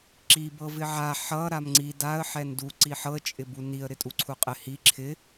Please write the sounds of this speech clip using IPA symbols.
ǁ i b ɤ v ɪ ʕ a ħ ʌ ɾ a m ŋ͡ǀ i d a ə̯ ħ ɛ n d u ǀ i ħ ɤ ə̯ t͡ʃʼ ɪ b u n i ə̯ ɾ ɪ tʼ u ǀʰ u qʼ ɪ h i ǁʰ ɪ

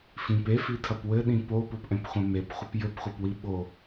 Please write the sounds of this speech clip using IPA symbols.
f ĩ p e f i tʰ ɐ p w ɘ ɗ ĩ p o p o p ʔ ɛ̃ p χʷ ɛ̃ m e p χʷ ɘ p j ɘ p χʷ ɐ p w i ɓ o

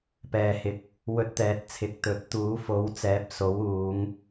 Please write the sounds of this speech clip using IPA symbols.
p ɛː˨ h ɪ˨˥ k̚ | w ɵ˧ t̚ t̪ ɛː˨ t̚ t͡sʰ ɪ˨ k̚ t̪ ɵ˨˥ t̚ t̪ uː˨˥ f o˨˥ w t͡s ɛː˨˥ p̚ s o˨˥ w uː˨˧ ŋ

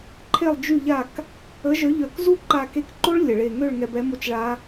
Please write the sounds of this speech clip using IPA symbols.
ǃʰ e˥˨ lˠ d͡ʒ y˥˨ ʎ a˥˨ k | ə˨˥ ʒ œ˨˥ ʎ œ˧˩ k z u˥˨ ǃ a˧˩ k e˧ k ǃ o˦˥ ɭ lʲ ə˩ ɭ e˧˩ ŋ ø˥˨ ɭ ŋ ɛ˧ b ɛ˨˥ m o˥˨ t͡ʃ ɭ a˦˥

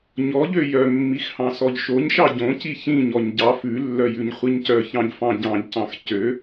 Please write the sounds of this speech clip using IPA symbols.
ɲ ɔ ʎ ø j œ mː i x h ɑ̃ s ɔ ʎ ʃ o ɲ ʃ ɑ ɟ õ c i ç ĩ ɲ ɔ ɲ ɟ ɑ f ʉ lː œ j ʉ ɲ χʷ i ɲ c œ ç ɑ̃ ʎ f ɑ̃ ɟ ɑ̃ ʎ c ɑ̃ x c ø

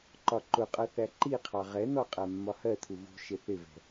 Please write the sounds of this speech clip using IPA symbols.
ǃ ɒ ǃ ʊ qʼ ʌ θ æ ǃ i qʰ ɑ ʁ ɛ n ɔ qʼ æ mː ɒ h ɜ tʰ u v ṳ ʃ ɪ θ ɪ v ɛ̤

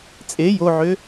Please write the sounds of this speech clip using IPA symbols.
t͡sʼ e j o ʕ ø

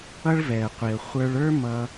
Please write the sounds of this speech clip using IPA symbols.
ʌ˥ ɭ v ɛ˩ ə̯ qʷ i˩ ə̯ χʷ ə˞˧ ɭ ə˞˥ m ʌ˧

